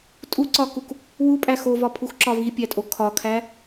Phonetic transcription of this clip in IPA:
tʼ u ǀ ɒ k u k | w u pʼ æ x o v ɒ pʰ u x ǁ ɒ v i pʲ æ tʼ o kʰ ɒ kʰ æ

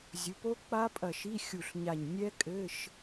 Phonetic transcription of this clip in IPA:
zʲ u˩˥ p o˦˥ k͡p a˦˥ pʼ ɐ˧˩ ʃ i˧˥˧ xʲ u˧˩ ɬ ɲ a˧˩ ɲ nʲ ɛ˦˥ kʼ ɘ˧˥˧ ʃ

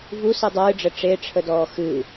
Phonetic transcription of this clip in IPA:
v u s ɨ dˤ ɨː ɖ͡ʐ ə ʈ͡ʂ e ʈ͡ʂʰ ə d ɔː x ɨ

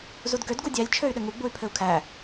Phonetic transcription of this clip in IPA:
z u d ɡ ø d ɡ u dʲ æ lʲ t͡ʃʰ ø y̯ ɗ ɘ ŋ u ɡ͡b u y̯ pʰ ɘ u̯ kʰ æ

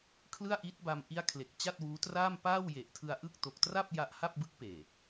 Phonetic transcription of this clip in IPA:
kʰ l ɯ˥˩ a̯ ʔ i˦˥ t̚ b a˧ m ʔ i˦˥ a̯ kʰ l e˨˩ k̚ t͡ɕ a˥˩ t̚ w uː˦˥ t r aː˥˩ m p aː˥˩ w j e˨˩ ʔ tʰ ɯ˧ a̯ ʔ ɯ˥˩ k̚ t o˨˩ k̚ t r a˥˩ p̚ j a˦˥ ʔ h a˥˩ p̚ b ɯ˦˥ k̚ p eː˨˩

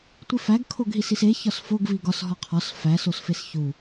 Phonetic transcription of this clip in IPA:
tʷ i f æ ɡ kʰ o ɡ ɦ i s i s e ç ɒ s f o ɡ v i ɡ ɒ s ɦ ɒ qʰ ɒ s f æ s o s f e s ç u

